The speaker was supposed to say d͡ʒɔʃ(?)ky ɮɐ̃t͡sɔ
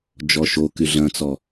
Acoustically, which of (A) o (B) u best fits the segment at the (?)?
A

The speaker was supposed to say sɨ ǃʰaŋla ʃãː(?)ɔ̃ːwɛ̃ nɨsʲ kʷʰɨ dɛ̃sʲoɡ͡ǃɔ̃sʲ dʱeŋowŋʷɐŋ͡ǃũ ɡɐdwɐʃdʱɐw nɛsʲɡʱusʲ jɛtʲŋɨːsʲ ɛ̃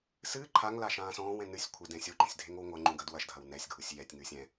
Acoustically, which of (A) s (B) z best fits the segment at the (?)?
A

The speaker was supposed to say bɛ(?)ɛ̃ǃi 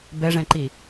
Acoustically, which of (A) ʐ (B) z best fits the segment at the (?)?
A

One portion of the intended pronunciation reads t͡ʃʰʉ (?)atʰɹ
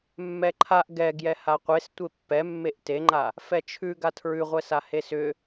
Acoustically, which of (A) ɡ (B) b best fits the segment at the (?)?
A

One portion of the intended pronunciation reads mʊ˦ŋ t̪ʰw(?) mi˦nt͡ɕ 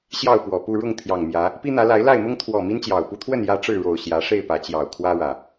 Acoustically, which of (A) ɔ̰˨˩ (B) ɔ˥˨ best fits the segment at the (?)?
B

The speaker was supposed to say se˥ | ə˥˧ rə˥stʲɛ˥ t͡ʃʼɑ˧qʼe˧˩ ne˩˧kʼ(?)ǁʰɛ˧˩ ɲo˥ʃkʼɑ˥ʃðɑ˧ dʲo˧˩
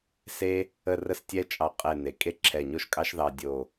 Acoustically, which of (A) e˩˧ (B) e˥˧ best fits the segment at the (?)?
B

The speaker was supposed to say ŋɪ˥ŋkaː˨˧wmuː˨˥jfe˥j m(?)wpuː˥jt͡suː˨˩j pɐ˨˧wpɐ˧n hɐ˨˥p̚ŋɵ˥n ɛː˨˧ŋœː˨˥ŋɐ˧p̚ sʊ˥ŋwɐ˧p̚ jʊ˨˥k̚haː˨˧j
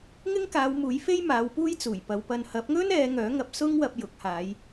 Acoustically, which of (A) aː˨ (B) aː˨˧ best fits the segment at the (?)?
B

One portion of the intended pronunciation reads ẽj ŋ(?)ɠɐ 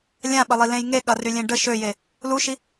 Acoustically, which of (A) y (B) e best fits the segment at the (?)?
B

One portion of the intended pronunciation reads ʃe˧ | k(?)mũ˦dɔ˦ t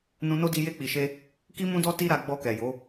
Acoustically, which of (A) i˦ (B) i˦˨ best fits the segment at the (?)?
A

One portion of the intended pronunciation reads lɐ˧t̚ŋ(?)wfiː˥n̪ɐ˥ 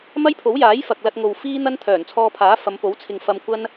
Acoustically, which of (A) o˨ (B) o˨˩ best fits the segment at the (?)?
A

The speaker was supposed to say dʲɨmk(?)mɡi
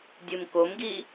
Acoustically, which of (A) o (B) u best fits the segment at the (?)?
A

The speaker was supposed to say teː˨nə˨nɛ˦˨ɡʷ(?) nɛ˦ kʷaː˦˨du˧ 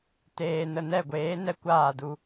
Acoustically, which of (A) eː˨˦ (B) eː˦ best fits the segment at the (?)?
A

